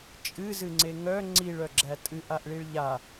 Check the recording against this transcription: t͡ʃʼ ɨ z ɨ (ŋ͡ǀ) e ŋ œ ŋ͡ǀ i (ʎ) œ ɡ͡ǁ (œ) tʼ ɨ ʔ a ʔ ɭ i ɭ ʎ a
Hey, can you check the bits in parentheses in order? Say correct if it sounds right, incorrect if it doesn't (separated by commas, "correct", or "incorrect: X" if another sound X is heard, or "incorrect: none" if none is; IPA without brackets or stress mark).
correct, incorrect: ɭ, incorrect: æ